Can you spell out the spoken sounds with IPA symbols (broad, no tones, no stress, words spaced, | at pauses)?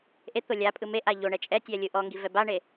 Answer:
ʔet̪o lʲapʼɯ meʔa ʎo ɳɛt͡ʃʼɛtʲɛ lʲɯʔɔŋɡi vɛbaɳe